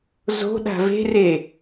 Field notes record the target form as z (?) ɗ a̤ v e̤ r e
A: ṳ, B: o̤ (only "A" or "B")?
B